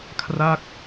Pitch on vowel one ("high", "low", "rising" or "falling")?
falling